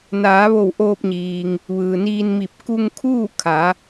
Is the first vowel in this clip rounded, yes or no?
no